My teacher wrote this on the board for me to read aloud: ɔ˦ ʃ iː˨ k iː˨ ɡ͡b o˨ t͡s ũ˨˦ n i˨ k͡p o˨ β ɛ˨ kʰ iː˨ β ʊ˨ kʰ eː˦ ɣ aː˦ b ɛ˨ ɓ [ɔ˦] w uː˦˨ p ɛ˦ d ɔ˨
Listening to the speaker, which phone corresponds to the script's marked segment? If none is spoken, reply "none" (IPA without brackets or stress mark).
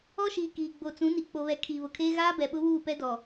ʊ˦